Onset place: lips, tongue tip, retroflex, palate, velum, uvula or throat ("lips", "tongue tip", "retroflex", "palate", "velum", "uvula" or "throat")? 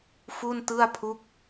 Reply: lips